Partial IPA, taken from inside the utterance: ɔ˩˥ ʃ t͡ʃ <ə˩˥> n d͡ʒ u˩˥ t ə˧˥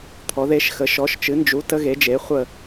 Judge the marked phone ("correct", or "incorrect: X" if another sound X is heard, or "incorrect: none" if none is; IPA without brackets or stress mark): incorrect: ɨ˩˥